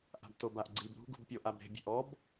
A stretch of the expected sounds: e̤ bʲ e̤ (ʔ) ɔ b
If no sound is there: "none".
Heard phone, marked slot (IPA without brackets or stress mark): ʔ